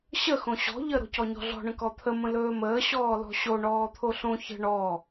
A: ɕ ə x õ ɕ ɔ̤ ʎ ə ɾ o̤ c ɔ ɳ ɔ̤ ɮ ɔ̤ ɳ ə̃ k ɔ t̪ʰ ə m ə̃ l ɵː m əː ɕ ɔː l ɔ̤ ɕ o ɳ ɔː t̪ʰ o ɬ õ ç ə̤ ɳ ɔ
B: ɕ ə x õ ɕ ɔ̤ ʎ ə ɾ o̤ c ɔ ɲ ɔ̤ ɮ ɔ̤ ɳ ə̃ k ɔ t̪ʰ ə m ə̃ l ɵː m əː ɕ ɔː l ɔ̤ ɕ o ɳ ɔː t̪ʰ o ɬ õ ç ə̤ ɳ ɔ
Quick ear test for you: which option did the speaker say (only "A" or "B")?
B